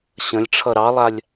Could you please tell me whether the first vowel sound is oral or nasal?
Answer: nasal